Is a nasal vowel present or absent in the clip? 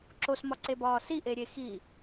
absent